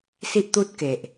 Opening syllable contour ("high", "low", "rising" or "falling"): high